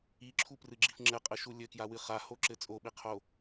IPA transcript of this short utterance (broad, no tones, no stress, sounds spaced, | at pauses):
i ǁʰ u p r ɨ ɡ͡ǁ i f ŋ͡ǁ ɘ qʼ ɘ ʃ u lʲ ɘ k j a w ɨ χ a h o ǁ ɘ t͡sʼ o ɓ i qʰ o